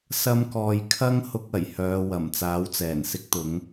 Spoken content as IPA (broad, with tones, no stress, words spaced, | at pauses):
sɐ˥mkɔː˧j kʰɐ˥ŋhʊ˧k̚ ɐ˨˩jhœː˨˧wɐ˨˩m t͡saː˨˥wt͡sɛː˨˩n sɪ˥k̚t̪ʊ˨˥ŋ